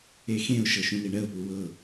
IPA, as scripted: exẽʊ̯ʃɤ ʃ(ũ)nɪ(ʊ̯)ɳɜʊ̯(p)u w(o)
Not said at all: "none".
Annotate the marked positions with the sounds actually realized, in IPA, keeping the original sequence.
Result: ũ, none, p, ɤ

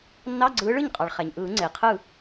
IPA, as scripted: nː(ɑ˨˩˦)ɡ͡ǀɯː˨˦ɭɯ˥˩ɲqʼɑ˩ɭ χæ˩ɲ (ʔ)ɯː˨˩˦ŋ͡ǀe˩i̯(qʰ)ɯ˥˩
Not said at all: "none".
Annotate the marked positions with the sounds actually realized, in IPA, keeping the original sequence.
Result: ɑ˧˥˧, ʔ, qʰ

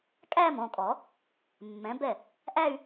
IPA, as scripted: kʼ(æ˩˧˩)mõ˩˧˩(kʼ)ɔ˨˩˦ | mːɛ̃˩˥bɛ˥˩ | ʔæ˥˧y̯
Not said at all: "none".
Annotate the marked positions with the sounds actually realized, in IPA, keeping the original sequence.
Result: æ˥˧, kʼ

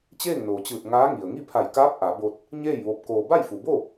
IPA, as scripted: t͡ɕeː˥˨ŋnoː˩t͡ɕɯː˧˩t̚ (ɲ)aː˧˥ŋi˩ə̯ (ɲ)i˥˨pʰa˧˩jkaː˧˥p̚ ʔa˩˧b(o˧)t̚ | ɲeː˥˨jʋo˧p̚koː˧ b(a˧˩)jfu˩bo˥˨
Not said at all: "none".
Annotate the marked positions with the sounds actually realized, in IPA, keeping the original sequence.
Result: ŋ, ŋ, o˧, a˥˨

